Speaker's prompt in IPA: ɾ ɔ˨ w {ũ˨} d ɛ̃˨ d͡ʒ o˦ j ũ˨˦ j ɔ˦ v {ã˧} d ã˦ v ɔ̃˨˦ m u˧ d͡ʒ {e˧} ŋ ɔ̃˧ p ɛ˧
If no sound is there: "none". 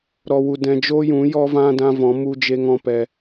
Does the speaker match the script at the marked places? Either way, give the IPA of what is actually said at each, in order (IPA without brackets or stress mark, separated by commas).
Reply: u˨, ã˦, e˧